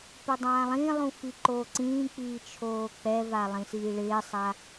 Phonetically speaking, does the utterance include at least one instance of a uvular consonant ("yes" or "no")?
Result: no